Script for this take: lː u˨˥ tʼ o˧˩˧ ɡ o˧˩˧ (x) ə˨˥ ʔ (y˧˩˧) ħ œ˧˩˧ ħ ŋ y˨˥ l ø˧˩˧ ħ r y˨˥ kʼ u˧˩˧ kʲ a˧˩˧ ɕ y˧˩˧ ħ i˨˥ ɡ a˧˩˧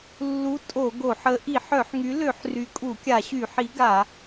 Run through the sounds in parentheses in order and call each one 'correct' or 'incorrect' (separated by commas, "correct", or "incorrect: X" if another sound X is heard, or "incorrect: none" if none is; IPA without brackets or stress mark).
incorrect: ħ, incorrect: i˧˩˧